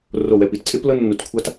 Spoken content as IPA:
r o˧˩ w ɛ˧˩ p i˧˩ t t͡sʼ e˥ p l ɤ˥ nː u˧˩ t kʷʰ a˥ t

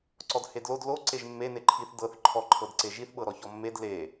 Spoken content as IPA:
ǀ ɔ d h e d l o d l o ǀ e ʒ mː e n e ǃʰ i θ d ɤ θ ǃʰ ɔ ǃʰ ɤ d ǀ e ʒ i θ ɓ ɤ ɾ ɔ ç ɔ mː e d l e

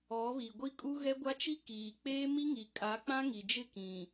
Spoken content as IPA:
ɔ˨˦ β i˨ ɡʷ i˦ kʼ u˦ ɣ ɛ˦ ɡʷ a˦ t͡ʃ i˦ k iː˨ k͡p eː˦ m i˦ ŋ i˨ kʼ a˨˦ k͡p ã˦ ŋ i˨ d͡ʒ ɪ˦˨ k ĩ˨

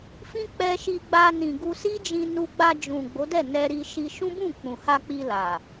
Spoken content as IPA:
f ĩ˦ k͡p ɛ˧ ʃ i˧ ɡ͡b a˧ n ĩ˨ ɡ u˧ s i˦ d͡ʒ ĩ˧ n u˧ ɡ͡b a˧ d͡ʒ ũ˨ ɡ͡b o˨˦ d ɛ˦˨ n ɛ˧ ɾ i˧ ʃ i˧ ʃ ũ˦ b ũ˦˨ k͡p ũ˨ h a˧ k͡p i˧ l a˨

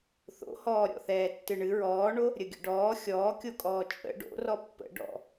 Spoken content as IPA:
θ o̰ h ɔː ɾʲ ɔ̰ θ ɛː tː ɨ ɳ ɨ ɹ ɔː ɳ o | ɾʲ ə ɡʲ ə̰ ɖ ɔː xʲ ɔː kʲ o kʼ ɔː t͡ʃʼ ə̰ ɖ o̰ r ɔ pː ə̰ ɖ ɔ̰

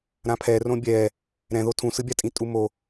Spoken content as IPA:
ɾ ã pʰ ɛ r õ bʲ ɛ | ɾ ɛ̃ ð o tʰ ũ s ɯ bʲ a tʼ ĩ tʼ u m o

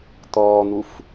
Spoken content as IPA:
t̪ ɔː n̪ u f

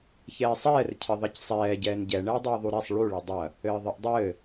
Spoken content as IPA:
ç ɛː sˤ ɛː r cʰ ɘ ðˤ ɐ c sˤ ɛː ɟ ɛː n ɟ ɛ ɳ ɛ e̯ dˤ ɘː ðˤ u ɾ ɛ sˤ ɭ u ɭ ɘ dˤ ɐ | ɘː ðˤ ɘ ʔ dˤ ɘː

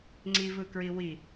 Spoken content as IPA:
ŋ͡ǀ i v ɯ k ɹ i w i

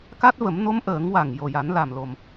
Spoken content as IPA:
k a˦˥ t̚ v ə˨˩˦ m n o˧˥ m ʔ əː˨˩˦ ŋ w a˨˩ ŋ j o˨˩ j a˨˩˦ n l a˨˩ m l o˨˩ m

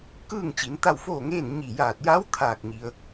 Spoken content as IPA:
k ɯː˥˨ ŋ t͡ɕ i˩˧ n t̪ a˥˨ w f oː˥˨ ŋ eː˥˨ n ɲ i˧˩ j aː˧˩ t̚ j a˧˥ w t̪ʰ aː˧˩ k̚ ɲ i˩ ə̯

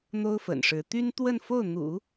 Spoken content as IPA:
n̪ o˥ ʊ̯ f ə̰˨˩ n ʂ ɻ̩˧˥ t̪ y˥ n t̪ w ə˥˧ n f o˥˩ ʊ̯ n̪ ṵ˨˩˦

